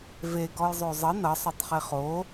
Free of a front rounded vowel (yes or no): yes